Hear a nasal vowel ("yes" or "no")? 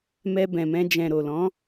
yes